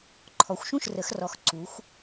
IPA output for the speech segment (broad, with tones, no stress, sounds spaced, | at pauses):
ǃʰ ɔ˩˧ xʷ ʃ ũ˥˩ ʃ r ə˩˧ x r ɔ˩˧ x ǀ u˩˧ xʷ